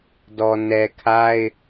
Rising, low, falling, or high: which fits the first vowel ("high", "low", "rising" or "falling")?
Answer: low